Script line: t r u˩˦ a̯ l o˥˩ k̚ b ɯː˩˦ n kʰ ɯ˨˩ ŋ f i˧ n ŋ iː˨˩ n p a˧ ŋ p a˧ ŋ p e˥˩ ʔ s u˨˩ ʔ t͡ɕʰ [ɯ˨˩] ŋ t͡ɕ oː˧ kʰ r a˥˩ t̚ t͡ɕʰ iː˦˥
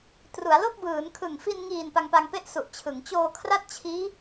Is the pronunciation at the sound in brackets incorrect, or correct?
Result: incorrect